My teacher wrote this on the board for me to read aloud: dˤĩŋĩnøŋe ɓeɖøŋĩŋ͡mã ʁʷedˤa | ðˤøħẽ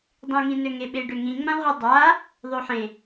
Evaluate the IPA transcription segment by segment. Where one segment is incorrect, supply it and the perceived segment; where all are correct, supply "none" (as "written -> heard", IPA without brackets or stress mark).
none